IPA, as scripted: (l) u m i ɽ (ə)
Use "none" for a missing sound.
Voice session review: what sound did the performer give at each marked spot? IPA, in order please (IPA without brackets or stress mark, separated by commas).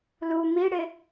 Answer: l, ɪ